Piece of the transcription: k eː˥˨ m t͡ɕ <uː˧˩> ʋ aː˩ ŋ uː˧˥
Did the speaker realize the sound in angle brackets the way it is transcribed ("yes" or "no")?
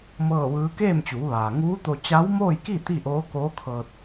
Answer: no